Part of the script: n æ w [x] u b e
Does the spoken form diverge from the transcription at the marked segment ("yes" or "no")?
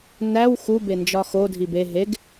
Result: no